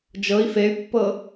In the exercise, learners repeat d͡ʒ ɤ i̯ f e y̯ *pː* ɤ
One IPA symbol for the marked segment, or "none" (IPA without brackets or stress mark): pː